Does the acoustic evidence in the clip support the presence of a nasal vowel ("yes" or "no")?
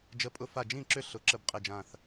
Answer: yes